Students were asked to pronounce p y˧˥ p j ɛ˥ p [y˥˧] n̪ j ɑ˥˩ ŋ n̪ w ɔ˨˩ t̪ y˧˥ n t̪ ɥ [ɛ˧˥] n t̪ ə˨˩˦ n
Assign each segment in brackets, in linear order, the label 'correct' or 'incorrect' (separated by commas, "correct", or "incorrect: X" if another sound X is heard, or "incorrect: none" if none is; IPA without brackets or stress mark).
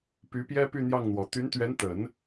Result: correct, correct